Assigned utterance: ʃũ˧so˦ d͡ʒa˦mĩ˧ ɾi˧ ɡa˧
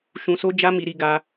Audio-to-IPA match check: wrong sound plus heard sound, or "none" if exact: ĩ˧ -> i˧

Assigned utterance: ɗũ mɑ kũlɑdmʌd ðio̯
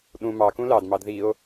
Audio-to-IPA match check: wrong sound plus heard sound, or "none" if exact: ʌ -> ɑ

